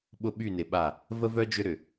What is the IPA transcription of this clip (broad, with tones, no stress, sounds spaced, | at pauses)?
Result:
ɓ ʊ˦ ɓ y˦˨ n ɪ˨ ɓ a˦˨ | v ə˦ v œ˦ d͡ʒ ʏ˦ ɾ ʏ˨